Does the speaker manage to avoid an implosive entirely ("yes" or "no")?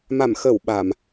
no